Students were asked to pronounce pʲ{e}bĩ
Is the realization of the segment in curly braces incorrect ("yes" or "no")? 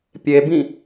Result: no